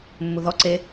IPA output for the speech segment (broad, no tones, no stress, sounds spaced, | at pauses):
mː u ð ɔ ǀ e